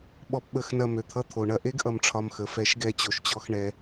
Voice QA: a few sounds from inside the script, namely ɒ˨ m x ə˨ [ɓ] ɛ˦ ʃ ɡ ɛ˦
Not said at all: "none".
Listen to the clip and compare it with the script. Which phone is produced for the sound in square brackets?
f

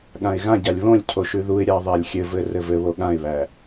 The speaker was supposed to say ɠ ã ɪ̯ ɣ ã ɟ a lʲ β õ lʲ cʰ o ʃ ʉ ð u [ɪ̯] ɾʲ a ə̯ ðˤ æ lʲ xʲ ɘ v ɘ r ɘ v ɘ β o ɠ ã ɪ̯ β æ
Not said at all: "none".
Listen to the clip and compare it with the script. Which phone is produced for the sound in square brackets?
ɪ̯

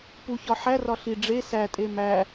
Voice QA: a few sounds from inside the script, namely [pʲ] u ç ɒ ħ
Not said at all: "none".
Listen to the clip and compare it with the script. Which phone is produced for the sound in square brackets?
p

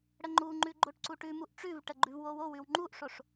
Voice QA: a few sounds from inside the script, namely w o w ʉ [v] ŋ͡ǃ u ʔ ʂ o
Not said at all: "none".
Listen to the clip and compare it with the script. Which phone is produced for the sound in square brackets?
w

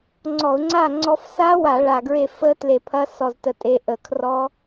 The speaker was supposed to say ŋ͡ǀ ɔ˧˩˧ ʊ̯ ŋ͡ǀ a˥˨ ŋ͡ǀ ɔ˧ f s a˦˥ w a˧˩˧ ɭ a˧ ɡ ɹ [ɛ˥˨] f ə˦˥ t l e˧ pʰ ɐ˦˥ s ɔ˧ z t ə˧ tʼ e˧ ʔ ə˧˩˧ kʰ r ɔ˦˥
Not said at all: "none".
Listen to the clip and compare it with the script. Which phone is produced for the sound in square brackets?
e˥˨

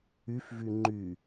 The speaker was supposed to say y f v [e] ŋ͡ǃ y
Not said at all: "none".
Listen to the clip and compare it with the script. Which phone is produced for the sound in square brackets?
y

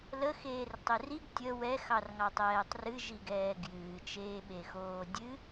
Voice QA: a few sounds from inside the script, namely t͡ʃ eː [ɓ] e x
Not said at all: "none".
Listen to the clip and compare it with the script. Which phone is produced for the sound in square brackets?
ɓ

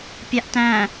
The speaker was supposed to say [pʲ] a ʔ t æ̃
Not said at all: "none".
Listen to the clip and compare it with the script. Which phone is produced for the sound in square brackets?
pʲ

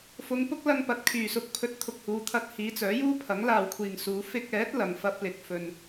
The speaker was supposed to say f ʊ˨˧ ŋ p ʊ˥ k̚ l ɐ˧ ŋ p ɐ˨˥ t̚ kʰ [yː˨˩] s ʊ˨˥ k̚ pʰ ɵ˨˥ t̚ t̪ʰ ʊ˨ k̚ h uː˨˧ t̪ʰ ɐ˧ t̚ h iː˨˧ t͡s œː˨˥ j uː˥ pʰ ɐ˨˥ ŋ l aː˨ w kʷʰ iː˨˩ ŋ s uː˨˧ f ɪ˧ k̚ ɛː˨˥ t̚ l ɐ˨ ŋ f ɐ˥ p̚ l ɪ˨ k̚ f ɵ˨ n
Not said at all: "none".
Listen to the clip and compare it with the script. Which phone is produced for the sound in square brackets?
yː˨˩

